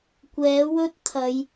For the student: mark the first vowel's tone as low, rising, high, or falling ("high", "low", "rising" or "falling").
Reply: rising